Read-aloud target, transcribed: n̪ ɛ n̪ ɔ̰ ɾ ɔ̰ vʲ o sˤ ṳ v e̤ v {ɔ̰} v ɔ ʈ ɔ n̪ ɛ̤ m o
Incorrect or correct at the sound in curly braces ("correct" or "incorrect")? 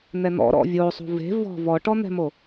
incorrect